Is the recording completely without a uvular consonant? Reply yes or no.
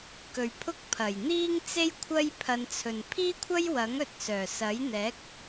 yes